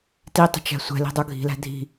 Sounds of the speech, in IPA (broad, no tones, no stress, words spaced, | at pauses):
titˤə̤ t͡ʃæ̤sʷɛ̤li̤ dˤuɡʱi̤læ̤ dʱi̤